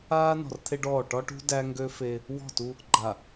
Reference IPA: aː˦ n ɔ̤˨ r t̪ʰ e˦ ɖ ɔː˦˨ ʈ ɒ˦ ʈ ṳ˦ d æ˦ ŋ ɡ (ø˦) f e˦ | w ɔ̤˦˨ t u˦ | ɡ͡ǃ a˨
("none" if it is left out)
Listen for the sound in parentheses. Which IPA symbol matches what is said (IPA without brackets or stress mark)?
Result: ø˦